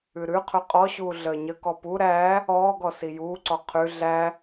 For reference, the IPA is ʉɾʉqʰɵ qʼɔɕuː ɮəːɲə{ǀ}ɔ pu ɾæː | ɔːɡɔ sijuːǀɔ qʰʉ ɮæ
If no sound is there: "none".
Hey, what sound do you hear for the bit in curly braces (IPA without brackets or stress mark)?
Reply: k